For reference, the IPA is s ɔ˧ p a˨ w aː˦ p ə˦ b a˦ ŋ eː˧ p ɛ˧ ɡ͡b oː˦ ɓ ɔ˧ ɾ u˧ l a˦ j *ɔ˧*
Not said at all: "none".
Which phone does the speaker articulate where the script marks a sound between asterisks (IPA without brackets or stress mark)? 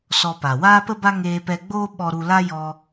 ɔ˧